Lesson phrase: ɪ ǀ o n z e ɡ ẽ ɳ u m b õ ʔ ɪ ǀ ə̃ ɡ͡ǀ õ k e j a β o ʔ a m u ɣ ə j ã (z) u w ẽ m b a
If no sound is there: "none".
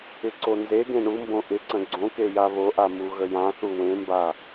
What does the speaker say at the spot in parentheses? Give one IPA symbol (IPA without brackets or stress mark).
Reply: θ